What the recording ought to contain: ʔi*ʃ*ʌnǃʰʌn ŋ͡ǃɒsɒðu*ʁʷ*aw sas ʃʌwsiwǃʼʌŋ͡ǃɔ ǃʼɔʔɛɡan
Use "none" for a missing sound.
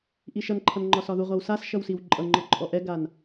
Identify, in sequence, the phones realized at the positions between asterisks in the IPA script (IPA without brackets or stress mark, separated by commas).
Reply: ʃ, ʁʷ